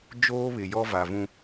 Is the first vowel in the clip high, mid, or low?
mid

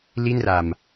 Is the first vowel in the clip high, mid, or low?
high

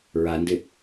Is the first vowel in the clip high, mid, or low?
low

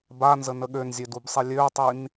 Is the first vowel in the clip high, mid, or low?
low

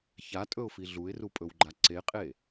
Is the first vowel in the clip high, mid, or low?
low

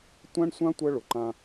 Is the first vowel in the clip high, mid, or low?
low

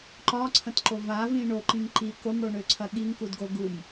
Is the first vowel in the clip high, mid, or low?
low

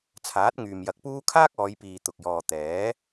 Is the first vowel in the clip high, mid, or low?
low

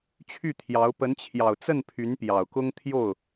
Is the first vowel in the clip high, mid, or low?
high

